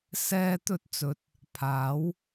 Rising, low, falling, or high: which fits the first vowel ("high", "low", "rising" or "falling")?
high